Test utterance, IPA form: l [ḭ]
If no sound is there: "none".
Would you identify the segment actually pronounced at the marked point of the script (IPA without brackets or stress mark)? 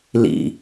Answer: ḭ